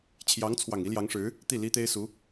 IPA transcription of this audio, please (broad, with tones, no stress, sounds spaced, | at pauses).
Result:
t͡ɕʰ j ɑ˧˥ ŋ t͡sʰ w ɑ˨˩ ŋ i˧˥ l j ɑ˧˥ ŋ ʂ ɻ̩˧˥ | t̪ i˥˩ l i˥ t̪ e˥ ɪ̯ s u˧˥